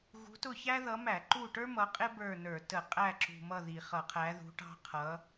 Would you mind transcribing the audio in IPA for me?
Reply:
ɣ ṳ˨˦ t ʊ˦˨ ç æ˥ ð ʌ˨˦ m æ˧˩˧ ǃ u˦˨ ʈ ə˞˥ m ʌ˨˦ qʼ ɪ˥ b ə˞˦˨ n ə˞˧˩˧ t ə˧˩˧ qʼ æ˦˨ ǁ ṳ˨˩ m ʌ˦˨ ð i˨˩ χ ʌ˧˩˧ qʰ æ˨˦ ð ṳ˨˦ ʈ ɑ̤˥ qʰ ʌ˨˦

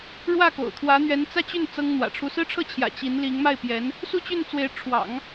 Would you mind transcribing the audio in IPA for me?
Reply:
ɻ w ä˥˩ k o̰˨˩ ʊ̯ t̪ʰ w ä˧˥ n̪ ɥ ɛ˧˥ n t͡s ä˥˧ t͡ɕ y˥˩ n t͡s ɤ˥ ŋ n̪ w ä̰˨˩ ʈ͡ʂʰ u˥ s ɹ̩˥ ʈ͡ʂʰ ɤ˥˩ t͡ɕʰ j ä̰˨˩ t͡ɕ i˧˥ n l i˧˥ ŋ m a˥˩ ɪ̯ p j ɛ˧˥ n | s u˥˧ t͡ɕ y˥˩ n t͡s w e˧˥ ɪ̯ ʈ͡ʂʰ w ɑ̰˨˩˦ ŋ

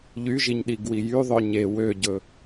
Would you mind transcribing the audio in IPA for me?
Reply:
ʎ y ʒ i ɲ ɗ i ɡ w i j y ðˤ œ ɲ e w ø ɟ ɵ

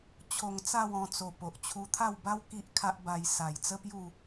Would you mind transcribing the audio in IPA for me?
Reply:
t͡ɕʰ o˧ ŋ t͡s a˥˧ w ɔ̃˧ t͡s o˨˩ p o˨ ʔ t͡ɕʰ u˧ t̪ʰ a˥˧ w b a˦ w k i˦ ʔ kʰ a˦ ʔ b a˧ j s a˨˩ j t͡s ə˦ p j u˥˧

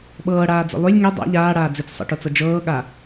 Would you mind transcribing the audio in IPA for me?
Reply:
ɓ ɤː ɽ aː d͡z ə̰ lˠ y lʲ ŋ e dˤ a̰ ʎ aː ɽ aː d͡z i t͡s sˤ ə̰ ʈ o t͡s ɤ d͡ʒ ɤː ɠ a

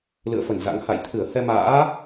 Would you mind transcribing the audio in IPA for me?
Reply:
l ɨ̰˧˨ ə̯ f ə˧˩ n z a̰˧˥ ŋ h a̰˧˨ j t̪ʰ ɨ˧˩ ə̯ h ɛ˧ m a̰ː˧˥

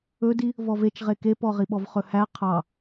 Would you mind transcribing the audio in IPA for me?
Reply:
ɵ d i | v ɔ v e t͡ʃ ʁ e k e p ɔ ʁ i ɓ ɔ v χ ɵ h æ qʰ ɑ

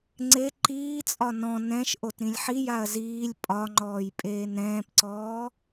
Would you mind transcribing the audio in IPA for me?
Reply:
ŋ͡ǀ e ǃ iː t͡sʼ ɒ n ɔ̃ n ɛ̃ ʃ ʔ o t ɾ ĩ lʲ ħ i j a ɐ̯ z iː lʲ pʼ ɒ ŋ͡ǃ ɔː j pʼ eː n ɾ ɛ̃ː p ǀ ɔː

